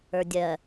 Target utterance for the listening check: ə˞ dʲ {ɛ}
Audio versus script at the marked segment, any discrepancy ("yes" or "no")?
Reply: yes